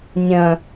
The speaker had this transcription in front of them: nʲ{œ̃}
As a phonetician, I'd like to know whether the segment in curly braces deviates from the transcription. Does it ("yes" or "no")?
no